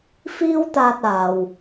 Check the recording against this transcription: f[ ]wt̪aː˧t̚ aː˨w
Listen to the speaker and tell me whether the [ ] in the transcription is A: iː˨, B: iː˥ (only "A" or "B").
B